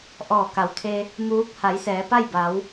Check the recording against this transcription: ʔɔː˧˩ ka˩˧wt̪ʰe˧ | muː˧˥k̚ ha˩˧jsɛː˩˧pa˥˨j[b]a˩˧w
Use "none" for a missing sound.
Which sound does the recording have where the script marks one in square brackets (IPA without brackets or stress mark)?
b